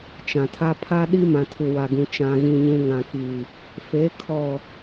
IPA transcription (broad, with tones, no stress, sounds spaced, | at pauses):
t͡ʃ ã˨ tʰ a˦ pʰ a˦ ɗ i˦ m ã˨ tʰ u˨ w a˨ ɡ ũ˨ t͡ʃ ã˨ ɣ ĩ˨ ɲ ũ˨ ŋ ã˨ k i˨ | f e˨˦ kʰ ɔ˨